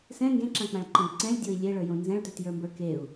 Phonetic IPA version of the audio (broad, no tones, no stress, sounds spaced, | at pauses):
s ɛ̃ ŋ ɡ ẽ ǁ ã k͡p ã ɭ ǃ ɛ̃ d ǀ ɛ̃ lʲ dʲ o i̯ lʲ e ɭ ə˞ j õ n z ɛ̃ ɭ t ə˞ t j ə˞ m b ə˞ k e u̯